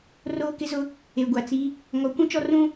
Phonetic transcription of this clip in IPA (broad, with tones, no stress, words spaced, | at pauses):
roː˦kɪ˦zʊ˦ | e˨ɡʷa˨t͡si˦ | ŋɔ˨˦kʷũ˦t͡ʃɔ˦ rũ˦